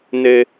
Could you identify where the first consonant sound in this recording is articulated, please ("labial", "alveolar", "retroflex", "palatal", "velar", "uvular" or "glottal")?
alveolar